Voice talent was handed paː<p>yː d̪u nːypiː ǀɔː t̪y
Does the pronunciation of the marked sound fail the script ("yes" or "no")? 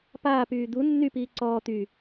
no